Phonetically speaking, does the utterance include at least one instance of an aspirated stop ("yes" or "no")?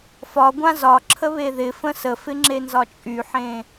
yes